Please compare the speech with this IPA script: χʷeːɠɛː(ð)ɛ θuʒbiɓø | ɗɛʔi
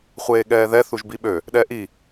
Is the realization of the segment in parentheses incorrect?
no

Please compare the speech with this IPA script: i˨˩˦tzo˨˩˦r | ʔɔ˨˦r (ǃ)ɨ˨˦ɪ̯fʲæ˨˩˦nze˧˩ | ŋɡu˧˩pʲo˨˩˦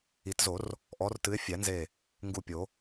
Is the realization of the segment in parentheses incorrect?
yes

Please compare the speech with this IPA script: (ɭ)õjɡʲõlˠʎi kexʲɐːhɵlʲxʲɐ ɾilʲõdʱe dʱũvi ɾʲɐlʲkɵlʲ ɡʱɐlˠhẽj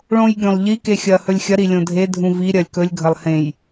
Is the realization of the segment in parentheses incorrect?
no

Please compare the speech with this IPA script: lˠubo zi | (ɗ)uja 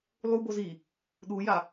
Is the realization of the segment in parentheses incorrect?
no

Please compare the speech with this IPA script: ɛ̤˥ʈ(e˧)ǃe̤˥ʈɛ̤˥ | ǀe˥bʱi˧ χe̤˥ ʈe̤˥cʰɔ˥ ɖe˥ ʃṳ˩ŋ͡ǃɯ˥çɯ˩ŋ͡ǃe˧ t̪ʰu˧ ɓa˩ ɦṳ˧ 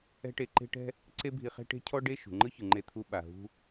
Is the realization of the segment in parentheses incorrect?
no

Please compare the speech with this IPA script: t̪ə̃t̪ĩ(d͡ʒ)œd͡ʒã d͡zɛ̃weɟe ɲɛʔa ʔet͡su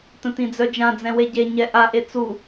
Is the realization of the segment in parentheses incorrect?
yes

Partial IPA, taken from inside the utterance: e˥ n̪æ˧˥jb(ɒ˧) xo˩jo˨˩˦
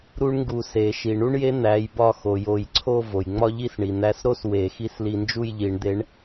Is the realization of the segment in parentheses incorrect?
yes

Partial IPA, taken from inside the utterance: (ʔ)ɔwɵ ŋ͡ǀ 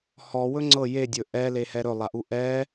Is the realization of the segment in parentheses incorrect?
yes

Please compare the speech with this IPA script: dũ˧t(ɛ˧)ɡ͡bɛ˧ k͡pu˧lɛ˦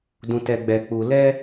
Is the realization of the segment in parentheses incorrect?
no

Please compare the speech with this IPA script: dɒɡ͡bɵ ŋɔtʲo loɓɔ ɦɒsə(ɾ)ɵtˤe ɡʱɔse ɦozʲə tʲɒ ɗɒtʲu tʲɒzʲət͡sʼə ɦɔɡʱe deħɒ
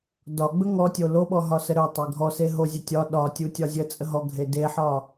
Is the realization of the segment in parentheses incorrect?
no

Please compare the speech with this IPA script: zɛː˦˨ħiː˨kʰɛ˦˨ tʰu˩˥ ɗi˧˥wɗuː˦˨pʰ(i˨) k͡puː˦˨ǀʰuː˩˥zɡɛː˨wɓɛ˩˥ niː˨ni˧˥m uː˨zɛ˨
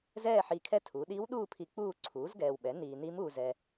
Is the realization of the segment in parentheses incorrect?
no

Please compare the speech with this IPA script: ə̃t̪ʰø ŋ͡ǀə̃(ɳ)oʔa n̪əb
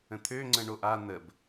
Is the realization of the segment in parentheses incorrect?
no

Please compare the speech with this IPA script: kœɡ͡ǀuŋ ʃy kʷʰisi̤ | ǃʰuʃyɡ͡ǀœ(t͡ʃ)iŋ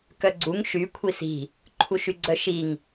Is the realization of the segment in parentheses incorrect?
yes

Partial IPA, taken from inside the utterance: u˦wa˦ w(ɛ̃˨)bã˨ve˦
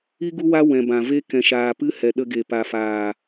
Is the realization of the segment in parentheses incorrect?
no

